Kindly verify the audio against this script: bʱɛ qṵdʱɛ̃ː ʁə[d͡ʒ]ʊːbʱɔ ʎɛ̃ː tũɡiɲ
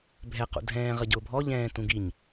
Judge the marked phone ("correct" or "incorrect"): incorrect